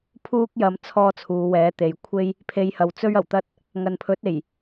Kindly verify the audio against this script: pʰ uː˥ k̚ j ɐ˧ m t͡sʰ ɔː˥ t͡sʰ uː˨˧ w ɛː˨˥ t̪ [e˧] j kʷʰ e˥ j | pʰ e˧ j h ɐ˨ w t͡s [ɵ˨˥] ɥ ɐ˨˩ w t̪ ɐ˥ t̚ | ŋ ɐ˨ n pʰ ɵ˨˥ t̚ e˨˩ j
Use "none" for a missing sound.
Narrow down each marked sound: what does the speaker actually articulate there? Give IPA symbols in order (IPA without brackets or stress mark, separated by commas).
e˨˧, ɵ˥